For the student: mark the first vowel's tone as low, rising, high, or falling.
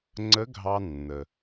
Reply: rising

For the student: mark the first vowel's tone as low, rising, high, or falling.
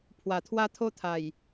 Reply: low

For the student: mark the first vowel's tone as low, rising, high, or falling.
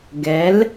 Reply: rising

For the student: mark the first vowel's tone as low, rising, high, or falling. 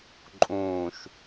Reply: low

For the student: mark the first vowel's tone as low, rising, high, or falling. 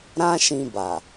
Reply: high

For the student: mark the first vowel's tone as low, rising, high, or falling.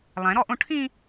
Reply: rising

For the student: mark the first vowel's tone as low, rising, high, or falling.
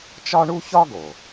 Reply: high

